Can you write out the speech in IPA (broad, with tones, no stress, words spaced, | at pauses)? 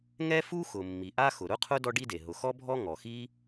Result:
ŋɛ˥fu˥xʊ˩ mːi˩ʔa˥ xʊ˩ɾʊ˥qʰʊ˥ dɔ˥ɖi˥de˩ ɦʊ˩xɔ˥ bʱɔ˥ ŋɔ˩xi˥